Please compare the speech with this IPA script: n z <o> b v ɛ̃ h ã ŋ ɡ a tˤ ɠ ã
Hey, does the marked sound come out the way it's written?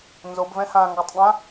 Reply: yes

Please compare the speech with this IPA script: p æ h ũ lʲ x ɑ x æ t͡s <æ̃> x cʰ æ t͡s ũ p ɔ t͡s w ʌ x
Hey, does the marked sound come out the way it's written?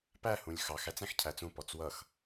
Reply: yes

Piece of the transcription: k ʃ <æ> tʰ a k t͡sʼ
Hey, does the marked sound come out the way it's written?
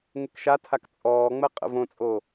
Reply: no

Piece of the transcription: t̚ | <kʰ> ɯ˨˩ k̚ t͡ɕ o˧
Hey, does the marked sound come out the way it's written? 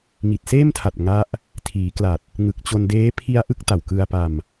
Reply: no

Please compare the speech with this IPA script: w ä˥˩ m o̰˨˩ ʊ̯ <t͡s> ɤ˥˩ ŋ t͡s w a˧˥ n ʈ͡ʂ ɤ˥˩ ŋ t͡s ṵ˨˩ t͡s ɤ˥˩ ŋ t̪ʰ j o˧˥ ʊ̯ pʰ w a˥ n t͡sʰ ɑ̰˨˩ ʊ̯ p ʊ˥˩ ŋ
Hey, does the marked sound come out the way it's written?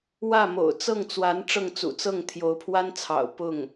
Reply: yes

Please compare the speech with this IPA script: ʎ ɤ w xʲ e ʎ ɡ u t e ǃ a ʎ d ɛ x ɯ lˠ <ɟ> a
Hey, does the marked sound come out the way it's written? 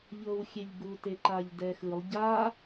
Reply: yes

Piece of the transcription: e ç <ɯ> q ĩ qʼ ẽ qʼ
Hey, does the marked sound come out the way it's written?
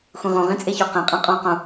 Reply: no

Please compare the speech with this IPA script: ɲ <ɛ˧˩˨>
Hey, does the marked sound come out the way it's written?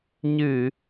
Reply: no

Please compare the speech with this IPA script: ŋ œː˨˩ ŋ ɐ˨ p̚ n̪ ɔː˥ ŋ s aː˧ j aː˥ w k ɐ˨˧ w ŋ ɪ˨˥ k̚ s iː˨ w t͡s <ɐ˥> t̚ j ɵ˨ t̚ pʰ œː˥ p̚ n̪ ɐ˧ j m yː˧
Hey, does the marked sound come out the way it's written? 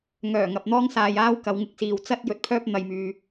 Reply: yes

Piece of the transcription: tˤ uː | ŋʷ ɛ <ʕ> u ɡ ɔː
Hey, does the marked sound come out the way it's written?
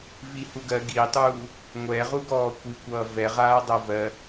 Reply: no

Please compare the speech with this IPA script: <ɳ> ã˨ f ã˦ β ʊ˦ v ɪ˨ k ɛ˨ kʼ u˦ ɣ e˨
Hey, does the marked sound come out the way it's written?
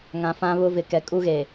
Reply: no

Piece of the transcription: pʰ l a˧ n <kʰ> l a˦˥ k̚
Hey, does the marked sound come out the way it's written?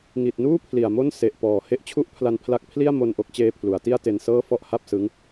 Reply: no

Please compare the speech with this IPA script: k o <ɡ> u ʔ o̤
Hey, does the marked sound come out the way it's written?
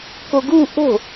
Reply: yes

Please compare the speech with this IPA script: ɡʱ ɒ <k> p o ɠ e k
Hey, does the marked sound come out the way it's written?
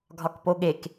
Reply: yes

